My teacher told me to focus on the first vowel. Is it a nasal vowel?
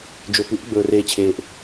no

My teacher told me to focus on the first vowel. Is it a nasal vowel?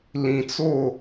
yes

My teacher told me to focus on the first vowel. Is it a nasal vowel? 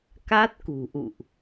no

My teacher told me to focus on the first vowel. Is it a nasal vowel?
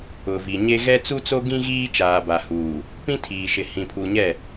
no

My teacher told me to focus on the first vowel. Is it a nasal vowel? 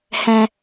yes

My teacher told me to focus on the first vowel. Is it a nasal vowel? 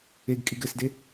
no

